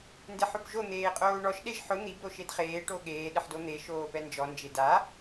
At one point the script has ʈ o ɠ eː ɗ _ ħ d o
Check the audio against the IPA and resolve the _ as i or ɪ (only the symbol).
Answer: ɪ